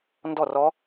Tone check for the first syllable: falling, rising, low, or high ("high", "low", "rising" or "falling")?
falling